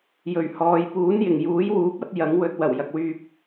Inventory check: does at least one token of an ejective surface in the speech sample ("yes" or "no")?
no